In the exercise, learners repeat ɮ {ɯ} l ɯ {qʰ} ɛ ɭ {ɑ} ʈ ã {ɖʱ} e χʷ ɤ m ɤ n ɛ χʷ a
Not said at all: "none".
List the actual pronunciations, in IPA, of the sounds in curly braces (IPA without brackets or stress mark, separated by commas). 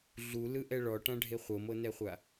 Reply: u, ʔ, ɔ, ɖʱ